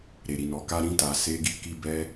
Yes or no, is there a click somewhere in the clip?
no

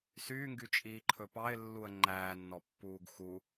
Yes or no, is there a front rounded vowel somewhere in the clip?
yes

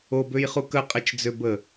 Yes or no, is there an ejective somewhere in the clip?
yes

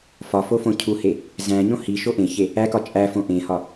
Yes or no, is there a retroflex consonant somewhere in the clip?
no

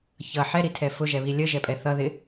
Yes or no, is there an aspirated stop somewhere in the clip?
yes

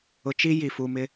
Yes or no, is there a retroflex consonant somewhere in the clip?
no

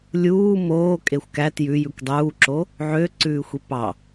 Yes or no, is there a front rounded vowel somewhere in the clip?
yes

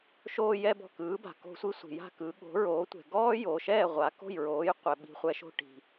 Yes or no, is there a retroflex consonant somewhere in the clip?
yes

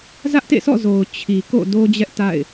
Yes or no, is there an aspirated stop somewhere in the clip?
yes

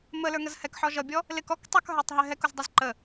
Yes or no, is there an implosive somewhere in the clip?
no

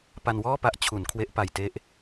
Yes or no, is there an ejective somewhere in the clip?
no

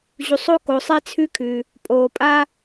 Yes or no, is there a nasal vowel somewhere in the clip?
no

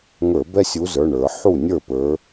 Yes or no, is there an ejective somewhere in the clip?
no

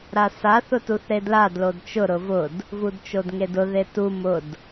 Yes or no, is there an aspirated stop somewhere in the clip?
no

